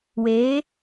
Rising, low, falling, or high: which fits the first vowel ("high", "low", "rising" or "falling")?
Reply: rising